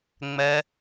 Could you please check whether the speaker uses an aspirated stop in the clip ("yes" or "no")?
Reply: no